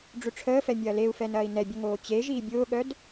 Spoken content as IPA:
ɖ͡ʐ ʏ ʈ͡ʂʰ əː f ɛ mʲ ɐː l e u̯ f ɛ n ɐː i̯ n ɛ bʲ ʊ ŋ oː t͡ɕ e ʒ iː bʲ ʊː ɠ œ d

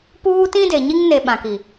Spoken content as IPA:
p uː˦ t ĩ˦ d e˨ ɲ i˦ ŋ n e˨ ɓ ã˨ k i˨

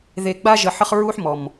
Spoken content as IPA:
ð e˨ ɡ͡b a˦ ʒ ə˨ ħ ə˦ χ ɹ u˦ ħ m ɔ˨ m

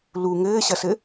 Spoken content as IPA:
l u ŋ ɘː ɕ ɐ s ɘ

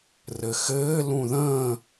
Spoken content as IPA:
r ɘ x ɘː l ũ ð ə̃ː

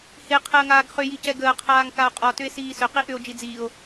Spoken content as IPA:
h e qʰ əː ŋ aː ɡ χ ʏ j i c ɛ ɡ əː qʰ aː ŋ k a o̯ qʼ ɔ t ʏ e̯ s iː s ʏ q i ʔ ʏ o̯ d͡ʒ i d͡z iː o̯

